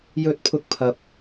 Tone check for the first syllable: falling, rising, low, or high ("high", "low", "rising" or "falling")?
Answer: high